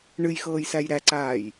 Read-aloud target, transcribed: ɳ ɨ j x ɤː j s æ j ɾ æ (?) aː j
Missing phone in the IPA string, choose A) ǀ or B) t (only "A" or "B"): A